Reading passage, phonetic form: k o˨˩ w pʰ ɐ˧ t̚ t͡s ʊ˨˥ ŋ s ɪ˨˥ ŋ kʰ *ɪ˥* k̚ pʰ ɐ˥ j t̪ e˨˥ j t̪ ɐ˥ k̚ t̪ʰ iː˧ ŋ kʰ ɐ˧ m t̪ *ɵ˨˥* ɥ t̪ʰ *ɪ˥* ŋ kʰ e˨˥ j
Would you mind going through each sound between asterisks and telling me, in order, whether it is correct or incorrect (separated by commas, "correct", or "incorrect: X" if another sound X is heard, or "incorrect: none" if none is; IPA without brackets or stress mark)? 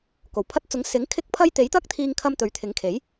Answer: correct, correct, incorrect: ɪ˨˥